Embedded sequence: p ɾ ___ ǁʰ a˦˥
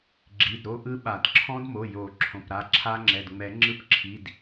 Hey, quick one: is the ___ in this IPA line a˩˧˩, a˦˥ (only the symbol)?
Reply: a˩˧˩